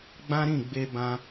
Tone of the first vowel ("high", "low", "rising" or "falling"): high